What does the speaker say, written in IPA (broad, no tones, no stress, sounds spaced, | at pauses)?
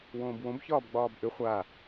w õː b w õ b ç ɒː b ɡ͡b ɒː b ʔ ʏ χʷ a